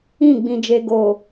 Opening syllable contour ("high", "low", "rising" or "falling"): falling